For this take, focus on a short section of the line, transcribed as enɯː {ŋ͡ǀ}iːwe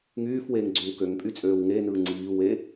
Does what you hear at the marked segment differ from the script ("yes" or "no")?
no